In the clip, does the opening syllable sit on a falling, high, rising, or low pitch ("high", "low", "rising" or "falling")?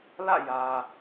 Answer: falling